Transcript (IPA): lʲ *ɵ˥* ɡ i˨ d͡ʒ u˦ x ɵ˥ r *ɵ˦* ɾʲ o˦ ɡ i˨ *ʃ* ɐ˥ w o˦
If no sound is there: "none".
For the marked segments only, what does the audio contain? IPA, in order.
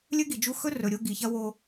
ɵ˥, ɵ˨, ç

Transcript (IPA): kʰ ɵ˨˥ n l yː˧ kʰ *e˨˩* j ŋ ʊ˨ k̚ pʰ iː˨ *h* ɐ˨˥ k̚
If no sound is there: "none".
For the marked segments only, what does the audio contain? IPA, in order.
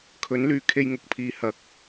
e˧, h

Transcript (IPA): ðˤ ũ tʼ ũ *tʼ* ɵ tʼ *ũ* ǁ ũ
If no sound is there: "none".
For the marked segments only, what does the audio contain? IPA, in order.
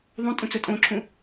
t͡s, õ

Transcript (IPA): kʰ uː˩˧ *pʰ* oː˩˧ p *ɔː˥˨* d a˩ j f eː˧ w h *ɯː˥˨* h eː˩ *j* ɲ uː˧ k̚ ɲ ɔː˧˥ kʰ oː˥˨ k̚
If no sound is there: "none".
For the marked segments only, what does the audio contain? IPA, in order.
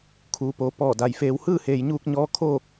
p, ɔː˧˩, ɯː˥˨, j

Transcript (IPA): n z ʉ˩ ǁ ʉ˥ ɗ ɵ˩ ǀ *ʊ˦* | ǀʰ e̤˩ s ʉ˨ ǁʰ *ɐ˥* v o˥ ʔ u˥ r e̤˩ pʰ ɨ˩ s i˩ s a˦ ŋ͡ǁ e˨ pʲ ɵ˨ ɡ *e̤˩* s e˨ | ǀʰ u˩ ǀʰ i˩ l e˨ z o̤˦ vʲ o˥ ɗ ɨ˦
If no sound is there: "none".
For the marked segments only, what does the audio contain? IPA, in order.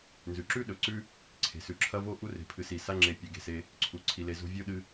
ʉ˦, ɐ˥, e̤˩

